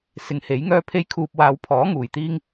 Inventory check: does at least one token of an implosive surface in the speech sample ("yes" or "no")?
no